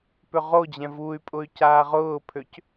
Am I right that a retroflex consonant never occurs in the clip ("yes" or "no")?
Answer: yes